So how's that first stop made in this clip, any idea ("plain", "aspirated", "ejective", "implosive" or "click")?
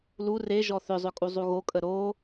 ejective